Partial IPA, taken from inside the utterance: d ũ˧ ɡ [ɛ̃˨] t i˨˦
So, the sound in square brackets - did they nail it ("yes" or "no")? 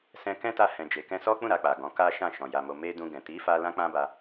yes